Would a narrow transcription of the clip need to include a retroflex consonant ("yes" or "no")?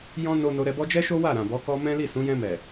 no